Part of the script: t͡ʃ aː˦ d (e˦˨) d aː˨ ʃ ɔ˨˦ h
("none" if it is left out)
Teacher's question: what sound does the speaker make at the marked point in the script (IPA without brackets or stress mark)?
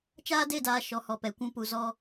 e˦˨